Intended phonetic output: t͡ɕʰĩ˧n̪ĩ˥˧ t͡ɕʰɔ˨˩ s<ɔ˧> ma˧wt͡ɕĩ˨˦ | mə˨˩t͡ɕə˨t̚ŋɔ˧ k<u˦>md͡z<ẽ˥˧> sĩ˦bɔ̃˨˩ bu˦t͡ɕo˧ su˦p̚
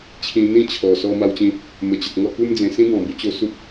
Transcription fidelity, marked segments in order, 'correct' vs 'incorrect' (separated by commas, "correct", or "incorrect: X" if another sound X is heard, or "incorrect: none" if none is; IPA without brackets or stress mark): correct, correct, incorrect: ẽ˨˩